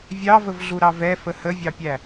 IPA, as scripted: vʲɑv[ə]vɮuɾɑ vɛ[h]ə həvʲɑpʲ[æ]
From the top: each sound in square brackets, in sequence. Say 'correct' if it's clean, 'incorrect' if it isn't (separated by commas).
correct, incorrect, correct